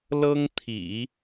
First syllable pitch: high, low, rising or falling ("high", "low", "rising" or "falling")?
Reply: high